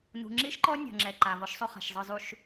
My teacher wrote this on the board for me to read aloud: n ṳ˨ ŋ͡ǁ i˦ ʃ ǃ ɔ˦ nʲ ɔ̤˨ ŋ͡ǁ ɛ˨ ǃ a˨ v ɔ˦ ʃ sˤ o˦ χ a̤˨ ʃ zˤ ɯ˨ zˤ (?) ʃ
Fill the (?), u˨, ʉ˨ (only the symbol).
u˨